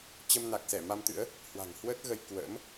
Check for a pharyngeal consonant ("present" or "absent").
absent